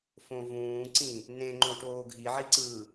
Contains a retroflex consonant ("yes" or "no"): yes